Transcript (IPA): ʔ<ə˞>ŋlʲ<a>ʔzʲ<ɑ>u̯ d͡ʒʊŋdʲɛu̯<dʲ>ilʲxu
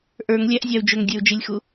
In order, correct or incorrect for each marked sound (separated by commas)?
correct, incorrect, correct, incorrect